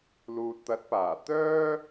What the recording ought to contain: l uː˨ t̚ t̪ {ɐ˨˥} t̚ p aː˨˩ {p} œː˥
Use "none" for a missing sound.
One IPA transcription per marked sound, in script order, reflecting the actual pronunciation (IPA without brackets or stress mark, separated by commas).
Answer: ɐ˨˥, t̪